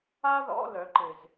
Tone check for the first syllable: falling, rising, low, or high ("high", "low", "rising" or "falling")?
high